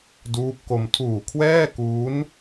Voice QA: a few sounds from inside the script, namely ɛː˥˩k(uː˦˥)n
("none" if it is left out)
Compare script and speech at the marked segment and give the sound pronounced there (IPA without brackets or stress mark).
uː˦˥